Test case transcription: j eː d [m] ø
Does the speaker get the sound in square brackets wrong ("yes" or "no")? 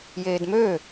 no